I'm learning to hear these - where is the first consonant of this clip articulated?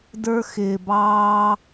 tongue tip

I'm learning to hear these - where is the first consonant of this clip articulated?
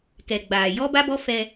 velum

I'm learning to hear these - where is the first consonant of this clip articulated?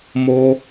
lips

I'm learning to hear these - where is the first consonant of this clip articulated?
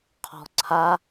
uvula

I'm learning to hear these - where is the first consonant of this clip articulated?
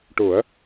retroflex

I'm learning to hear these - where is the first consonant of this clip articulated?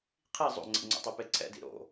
uvula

